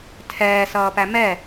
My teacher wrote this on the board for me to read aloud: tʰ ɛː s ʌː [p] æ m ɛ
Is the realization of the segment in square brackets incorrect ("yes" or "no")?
no